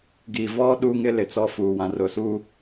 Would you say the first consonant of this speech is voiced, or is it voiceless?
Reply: voiced